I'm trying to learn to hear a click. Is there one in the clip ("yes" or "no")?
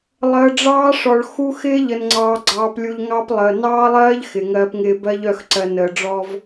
yes